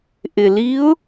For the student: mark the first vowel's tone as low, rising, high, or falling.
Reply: low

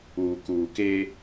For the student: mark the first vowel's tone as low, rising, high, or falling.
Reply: low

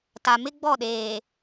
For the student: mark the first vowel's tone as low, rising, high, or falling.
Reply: low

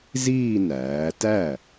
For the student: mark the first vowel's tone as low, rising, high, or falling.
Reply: falling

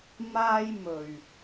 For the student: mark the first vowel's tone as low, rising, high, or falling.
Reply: high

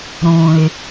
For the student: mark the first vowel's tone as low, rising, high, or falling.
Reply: low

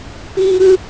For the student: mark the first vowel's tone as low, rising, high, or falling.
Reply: high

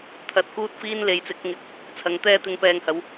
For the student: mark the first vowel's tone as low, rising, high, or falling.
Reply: low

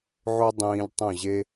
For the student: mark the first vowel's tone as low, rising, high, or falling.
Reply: high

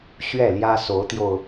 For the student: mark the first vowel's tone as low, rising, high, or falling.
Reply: falling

